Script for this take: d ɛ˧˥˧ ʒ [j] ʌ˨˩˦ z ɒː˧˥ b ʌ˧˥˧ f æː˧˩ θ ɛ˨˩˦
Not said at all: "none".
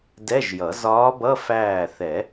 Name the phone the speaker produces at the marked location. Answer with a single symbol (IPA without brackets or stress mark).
j